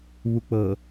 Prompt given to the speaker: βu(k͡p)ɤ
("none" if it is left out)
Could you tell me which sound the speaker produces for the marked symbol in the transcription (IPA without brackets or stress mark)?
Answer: k͡p